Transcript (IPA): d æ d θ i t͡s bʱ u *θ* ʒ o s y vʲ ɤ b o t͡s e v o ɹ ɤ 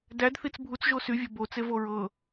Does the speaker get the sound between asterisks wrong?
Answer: yes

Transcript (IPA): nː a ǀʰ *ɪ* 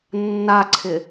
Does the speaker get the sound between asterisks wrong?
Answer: no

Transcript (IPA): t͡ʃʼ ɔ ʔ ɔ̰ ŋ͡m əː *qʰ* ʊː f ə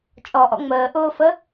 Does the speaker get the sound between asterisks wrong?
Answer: yes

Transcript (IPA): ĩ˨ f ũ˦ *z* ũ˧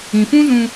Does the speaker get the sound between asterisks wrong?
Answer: no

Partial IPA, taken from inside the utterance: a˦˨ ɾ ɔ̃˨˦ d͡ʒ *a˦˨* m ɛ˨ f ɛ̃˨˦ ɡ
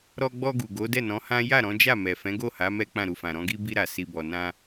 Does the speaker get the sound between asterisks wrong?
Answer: no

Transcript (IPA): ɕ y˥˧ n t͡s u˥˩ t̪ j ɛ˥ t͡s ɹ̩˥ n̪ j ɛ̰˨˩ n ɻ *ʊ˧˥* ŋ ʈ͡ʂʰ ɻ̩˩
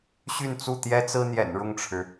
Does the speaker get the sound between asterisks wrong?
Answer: yes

